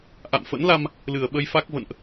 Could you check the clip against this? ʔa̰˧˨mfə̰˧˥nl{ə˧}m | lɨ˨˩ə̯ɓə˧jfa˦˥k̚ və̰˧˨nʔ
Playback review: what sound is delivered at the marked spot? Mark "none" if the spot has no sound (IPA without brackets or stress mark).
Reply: a˧